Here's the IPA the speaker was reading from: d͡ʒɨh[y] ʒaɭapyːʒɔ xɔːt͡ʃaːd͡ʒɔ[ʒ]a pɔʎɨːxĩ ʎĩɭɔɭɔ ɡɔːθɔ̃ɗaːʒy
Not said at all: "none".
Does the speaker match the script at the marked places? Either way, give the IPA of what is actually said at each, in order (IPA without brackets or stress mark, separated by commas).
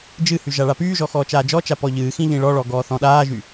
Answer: y, t͡ʃ